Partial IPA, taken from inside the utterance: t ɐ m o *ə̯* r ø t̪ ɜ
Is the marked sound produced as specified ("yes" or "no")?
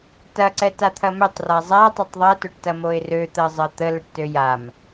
no